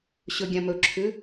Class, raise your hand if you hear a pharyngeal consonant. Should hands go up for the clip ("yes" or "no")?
no